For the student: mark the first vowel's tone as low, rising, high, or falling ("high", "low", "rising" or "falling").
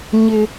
high